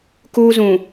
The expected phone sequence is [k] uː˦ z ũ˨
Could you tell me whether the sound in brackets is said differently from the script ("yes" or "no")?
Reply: no